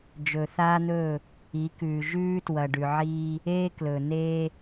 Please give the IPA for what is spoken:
d͡ʒ ɵ˨ θ aː˦ n̪ ɵː˦˨ | i˨˦ k ʉː˨ ʒ ʉː˦ t w ɐ˨ ɖ ʉ˨ ʕ iː˦ | eː˦ k l ɵ˨ n eː˦

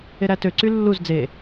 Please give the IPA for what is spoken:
e ɾ æ t ø ǀ y lː u z d͡z e

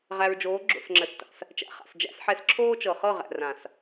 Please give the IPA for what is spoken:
ʁ æ˨ ɹ d͡ʒ oː˨˦ ɡ͡ǁ o̰˨ s ŋ͡ǁ ə˨ s t a̰˨ s | t͡ʃ æ̰˨ χ a̰˨ s d͡ʒ æ̰˦ s ħ ɛ˦ s ǁʰ oː˦ t͡ʃ ɤ˨ χ ɤ˦˨ ʁ æ̰˨ r ã˨ s

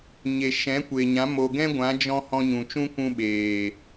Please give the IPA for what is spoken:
ɲ e˨ ʃ ɛ̃˨˦ kʷ e˨ ɲ ã˨˦ m o˨ ɡ ɛ̃˦ ɡʷ ã˨˦ d͡ʒ ɔ̃˧ h ɔ̃˧ ɲ ũ˨ t͡ʃ ũ˦ kʷ ũ˧ ɓ eː˨

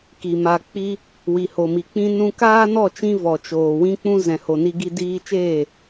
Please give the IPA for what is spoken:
k i˨ m a˨ k͡p i˧ | w i˨ h o˨ m i˨ k͡p ĩ˦ n ũ˧ k aː˦ n ɔ˦˨ t͡ʃ ĩ˧ v ɔ˨ t͡ʃ oː˨ w ĩ˧ k͡p ũ˧ z ɛ̃˨ h o˨ n i˧ ɡ i˧ d iː˧ t͡ʃ eː˦˨

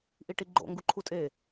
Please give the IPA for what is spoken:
ʔ i ʈ i ɡ͡ǃ o̰ ŋ ɡ u ǃʰ u tʼ e

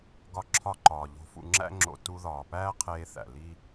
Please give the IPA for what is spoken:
ɡ ɒ˧ ǁʰ ɒ˧ ǃ ɒː˨ ʎ o̤˧ f ṵ˧ ŋ͡ǁ æ̰˦ ŋ͡ǁ o̰˧ t u˧ ð ɒː˨ p æː˦ qʰ eː˧ θ æ̰˨ l i˦

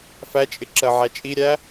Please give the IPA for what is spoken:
f æ t͡ʃʼ ɪ ǁ ɜ ʕ æ t͡ʃʼ i ɾʲ æ

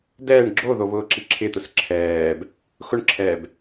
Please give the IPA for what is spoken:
d ɛː ɳ ɡ͡ǁ o ð o β ʊː ǁ i ǁʰ ɪ t̪ ʊ s ǁʰ ɛː b | x ʊ ɳ ǁʰ ɛː b

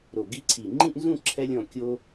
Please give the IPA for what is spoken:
ɾ o˨˩ ɡ i˧ ǀʰ i˨˩ ŋ͡ǃ ĩ˥˧ ʔ n z ũ˥˧ ǁʰ ɛ˧ lʲ ɔ̃˨˩ kʲ o˧

